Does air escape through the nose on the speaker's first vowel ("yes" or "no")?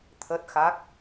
no